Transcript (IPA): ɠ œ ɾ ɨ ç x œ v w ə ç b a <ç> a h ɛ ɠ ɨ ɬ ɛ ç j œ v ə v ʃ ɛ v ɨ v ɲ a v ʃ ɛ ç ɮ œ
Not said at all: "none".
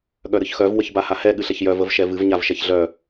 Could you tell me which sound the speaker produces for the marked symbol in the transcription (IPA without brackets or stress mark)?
h